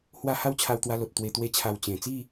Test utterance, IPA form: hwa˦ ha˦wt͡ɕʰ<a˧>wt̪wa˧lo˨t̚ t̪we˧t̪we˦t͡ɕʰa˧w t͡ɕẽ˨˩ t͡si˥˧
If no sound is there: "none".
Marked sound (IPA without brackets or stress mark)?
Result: a˧